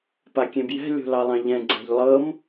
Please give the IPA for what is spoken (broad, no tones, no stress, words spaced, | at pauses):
pakʲẽbjɛ̤ lʲo̤lɑlˠɑ̃ʎɛ̃ ɡ͡ǀa̤ʎlˠɤm